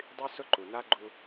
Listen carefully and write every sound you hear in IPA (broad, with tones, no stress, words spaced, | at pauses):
dˤy˦ sʊ˦ǃu˨ na˦ɡ͡ǃu˦